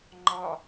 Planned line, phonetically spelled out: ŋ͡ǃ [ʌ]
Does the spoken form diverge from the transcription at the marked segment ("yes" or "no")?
yes